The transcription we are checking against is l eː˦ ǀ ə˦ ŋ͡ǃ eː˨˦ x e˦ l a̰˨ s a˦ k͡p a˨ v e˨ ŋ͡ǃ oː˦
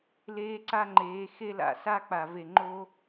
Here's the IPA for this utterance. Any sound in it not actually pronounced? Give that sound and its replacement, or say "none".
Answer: ə˦ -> a˦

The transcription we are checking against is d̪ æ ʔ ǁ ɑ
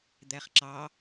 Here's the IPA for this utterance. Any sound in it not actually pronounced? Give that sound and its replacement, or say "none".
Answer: ʔ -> χ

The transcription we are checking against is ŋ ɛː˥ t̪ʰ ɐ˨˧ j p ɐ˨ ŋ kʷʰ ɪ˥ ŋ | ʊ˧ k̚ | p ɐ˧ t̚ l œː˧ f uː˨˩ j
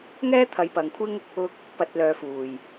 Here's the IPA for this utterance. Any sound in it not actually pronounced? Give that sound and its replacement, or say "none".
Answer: none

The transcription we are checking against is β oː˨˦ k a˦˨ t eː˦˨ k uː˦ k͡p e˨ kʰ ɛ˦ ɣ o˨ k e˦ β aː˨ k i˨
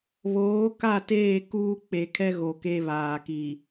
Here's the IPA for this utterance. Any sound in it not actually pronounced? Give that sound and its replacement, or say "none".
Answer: none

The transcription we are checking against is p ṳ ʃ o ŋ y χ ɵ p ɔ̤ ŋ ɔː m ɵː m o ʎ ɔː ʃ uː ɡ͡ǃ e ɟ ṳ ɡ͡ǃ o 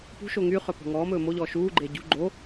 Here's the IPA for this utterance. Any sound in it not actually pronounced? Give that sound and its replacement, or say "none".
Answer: none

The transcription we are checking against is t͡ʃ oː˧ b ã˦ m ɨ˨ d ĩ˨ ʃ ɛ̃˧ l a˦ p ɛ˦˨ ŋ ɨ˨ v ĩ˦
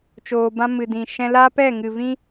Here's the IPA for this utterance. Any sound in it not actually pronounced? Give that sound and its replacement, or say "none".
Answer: none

